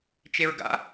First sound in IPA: t͡ʃ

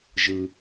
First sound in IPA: ʒ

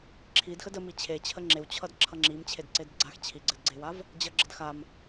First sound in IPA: ǁʰ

